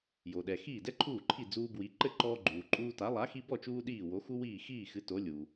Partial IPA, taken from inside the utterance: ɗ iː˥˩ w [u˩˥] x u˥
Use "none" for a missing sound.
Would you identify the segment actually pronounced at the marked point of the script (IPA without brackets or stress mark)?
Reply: o˩˥